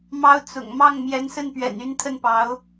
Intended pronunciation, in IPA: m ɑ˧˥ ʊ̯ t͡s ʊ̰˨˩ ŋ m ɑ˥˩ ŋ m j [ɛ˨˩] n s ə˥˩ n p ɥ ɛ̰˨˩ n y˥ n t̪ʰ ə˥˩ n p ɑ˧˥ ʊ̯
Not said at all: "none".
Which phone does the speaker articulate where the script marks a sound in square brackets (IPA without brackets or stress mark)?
ɛ˧˥